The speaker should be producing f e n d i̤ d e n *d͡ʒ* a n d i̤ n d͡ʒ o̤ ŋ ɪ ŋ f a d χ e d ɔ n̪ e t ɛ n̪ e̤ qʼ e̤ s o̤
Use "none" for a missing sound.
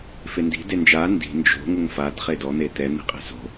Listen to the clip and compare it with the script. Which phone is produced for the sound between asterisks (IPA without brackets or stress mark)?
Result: d͡ʒ